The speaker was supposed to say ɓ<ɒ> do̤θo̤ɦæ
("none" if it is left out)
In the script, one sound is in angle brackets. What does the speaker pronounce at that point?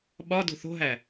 ɒ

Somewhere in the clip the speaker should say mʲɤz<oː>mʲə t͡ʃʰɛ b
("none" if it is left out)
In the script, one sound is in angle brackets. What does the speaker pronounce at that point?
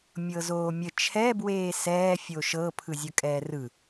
oː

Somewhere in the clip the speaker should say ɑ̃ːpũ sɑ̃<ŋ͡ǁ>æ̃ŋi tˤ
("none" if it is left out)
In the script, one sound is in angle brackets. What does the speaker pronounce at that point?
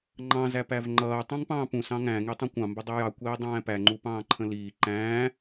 ŋ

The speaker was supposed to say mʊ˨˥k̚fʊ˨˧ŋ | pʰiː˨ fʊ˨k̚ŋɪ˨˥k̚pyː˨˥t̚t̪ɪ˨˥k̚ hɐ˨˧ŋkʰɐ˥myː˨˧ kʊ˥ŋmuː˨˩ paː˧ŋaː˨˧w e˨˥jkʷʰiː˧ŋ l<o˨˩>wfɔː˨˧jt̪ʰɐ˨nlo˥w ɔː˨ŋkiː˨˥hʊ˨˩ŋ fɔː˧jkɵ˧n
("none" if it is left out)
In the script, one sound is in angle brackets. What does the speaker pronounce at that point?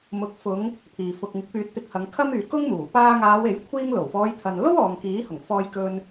o˨˩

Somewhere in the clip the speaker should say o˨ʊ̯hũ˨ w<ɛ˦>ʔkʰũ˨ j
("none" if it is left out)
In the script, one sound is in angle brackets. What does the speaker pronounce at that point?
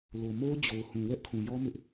ɛ˦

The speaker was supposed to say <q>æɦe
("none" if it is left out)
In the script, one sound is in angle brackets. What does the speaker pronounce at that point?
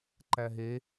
ǃ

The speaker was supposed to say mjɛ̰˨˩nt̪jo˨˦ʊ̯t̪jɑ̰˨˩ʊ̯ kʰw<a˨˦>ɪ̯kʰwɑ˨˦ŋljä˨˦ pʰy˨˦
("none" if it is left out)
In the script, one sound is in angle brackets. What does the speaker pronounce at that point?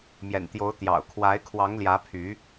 a˨˦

